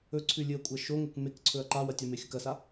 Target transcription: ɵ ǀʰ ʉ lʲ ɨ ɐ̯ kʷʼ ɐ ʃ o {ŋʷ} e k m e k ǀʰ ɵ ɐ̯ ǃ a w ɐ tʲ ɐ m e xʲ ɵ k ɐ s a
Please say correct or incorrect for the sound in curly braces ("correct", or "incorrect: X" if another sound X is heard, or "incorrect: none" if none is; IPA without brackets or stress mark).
incorrect: ŋ